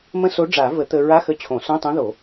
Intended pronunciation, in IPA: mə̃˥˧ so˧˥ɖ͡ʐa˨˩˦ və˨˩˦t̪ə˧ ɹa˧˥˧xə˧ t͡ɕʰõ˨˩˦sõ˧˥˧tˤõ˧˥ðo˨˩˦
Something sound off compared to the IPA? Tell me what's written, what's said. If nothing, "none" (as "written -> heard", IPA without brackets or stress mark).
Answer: none